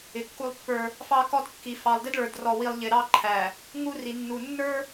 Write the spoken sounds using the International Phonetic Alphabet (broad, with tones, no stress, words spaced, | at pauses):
ɪ˨kːu˦lˠpːə˞˦ | fɑ˦kɔ˦dkːi˨ fɑ˨lˠdɪ˦dɭə˞˨d rɔ˨wi˨lˠ ʎɪ˨ɾɑ˦ǃʰæ˨ | ŋu˦ ri˨nːu˨ nːə˞˦